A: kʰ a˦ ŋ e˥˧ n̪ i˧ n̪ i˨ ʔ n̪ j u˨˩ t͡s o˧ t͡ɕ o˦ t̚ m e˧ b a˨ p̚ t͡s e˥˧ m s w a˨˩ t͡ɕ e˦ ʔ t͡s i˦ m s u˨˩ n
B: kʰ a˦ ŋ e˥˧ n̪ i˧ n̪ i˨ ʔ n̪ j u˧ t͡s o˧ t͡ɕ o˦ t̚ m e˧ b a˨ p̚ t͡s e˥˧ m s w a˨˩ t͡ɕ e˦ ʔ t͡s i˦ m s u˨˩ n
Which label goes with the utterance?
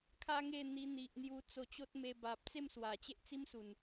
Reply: B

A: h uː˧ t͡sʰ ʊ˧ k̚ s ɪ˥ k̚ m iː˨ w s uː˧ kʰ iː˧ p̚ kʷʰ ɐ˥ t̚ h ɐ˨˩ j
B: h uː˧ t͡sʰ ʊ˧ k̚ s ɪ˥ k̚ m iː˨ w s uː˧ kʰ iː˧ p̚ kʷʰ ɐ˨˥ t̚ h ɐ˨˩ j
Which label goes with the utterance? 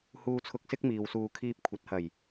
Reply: B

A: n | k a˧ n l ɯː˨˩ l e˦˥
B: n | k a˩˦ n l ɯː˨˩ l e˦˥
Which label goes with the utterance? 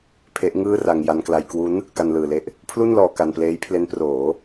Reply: A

